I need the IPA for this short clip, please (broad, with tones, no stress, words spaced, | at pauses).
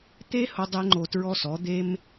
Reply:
t̪e˥hʊ˧ dˤe˥ŋ͡ǃo˧tɹɔ˥sɔ˩˥ d̪e˥m